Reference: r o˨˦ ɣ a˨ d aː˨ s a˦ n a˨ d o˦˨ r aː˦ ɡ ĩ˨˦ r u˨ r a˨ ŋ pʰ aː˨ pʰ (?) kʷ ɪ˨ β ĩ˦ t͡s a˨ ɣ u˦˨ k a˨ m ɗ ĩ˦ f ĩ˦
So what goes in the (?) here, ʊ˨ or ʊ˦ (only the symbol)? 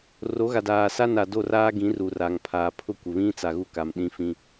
ʊ˦